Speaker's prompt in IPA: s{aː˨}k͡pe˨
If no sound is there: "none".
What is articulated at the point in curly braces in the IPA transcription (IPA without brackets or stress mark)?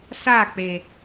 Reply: aː˦˨